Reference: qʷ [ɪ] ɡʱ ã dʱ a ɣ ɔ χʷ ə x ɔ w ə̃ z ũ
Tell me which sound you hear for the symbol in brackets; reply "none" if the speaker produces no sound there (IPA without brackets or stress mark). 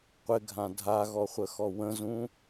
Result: ɪ